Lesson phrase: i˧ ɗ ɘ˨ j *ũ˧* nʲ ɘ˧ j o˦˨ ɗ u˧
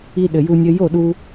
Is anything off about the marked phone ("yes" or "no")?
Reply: yes